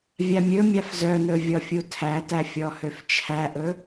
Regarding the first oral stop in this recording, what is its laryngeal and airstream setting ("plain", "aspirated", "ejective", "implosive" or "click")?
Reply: aspirated